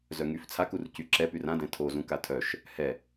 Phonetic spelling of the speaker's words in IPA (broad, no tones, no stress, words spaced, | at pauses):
zœŋyf t͡sʰakur cyǁɛpyr ãdɛ̃ tʰozũ katʰœʃ | hɛ